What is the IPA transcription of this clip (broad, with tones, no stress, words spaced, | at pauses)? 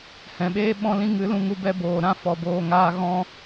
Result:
hɛ̃˨ɓeː˦ ɓɔ̃˦lĩ˦ ŋɨ˨˦ lũ˧ ŋu˧bɛ˧boː˨ ɾã˦fɔ˨boː˨ ŋaː˧ ɣɔ̃˦